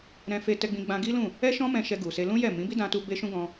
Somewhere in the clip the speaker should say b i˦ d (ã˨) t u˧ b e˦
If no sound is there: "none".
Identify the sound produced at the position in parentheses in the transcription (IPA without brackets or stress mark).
ã˧